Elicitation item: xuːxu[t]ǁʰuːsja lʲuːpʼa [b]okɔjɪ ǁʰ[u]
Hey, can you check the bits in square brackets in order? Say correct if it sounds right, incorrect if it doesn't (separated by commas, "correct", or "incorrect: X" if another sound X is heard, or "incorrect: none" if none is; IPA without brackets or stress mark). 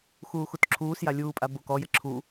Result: correct, correct, correct